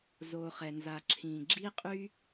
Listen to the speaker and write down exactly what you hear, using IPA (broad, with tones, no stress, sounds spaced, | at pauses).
z o˩ χ ɛ˩ n z a˩ ǁʰ ĩ˩ ɡ͡ǁ i˥ qʼ y˥